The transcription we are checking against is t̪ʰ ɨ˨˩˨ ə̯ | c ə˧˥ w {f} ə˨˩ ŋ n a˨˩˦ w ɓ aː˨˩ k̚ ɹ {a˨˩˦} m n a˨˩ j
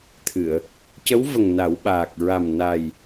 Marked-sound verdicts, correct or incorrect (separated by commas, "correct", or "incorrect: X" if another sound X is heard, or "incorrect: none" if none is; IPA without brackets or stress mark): incorrect: v, incorrect: a˨˩